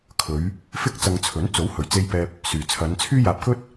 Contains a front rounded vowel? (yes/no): yes